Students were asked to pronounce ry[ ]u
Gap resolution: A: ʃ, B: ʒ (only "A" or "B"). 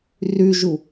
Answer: B